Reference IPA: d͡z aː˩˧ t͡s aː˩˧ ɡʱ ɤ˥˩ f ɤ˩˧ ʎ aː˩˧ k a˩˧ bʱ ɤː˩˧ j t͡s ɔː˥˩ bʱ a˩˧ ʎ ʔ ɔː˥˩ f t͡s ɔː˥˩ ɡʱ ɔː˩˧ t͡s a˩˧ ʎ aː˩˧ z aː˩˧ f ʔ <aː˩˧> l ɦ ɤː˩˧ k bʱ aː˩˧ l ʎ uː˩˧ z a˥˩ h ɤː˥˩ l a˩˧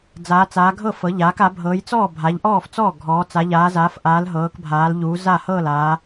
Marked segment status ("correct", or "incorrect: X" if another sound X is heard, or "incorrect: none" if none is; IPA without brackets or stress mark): correct